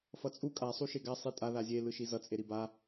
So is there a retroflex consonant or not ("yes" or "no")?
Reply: no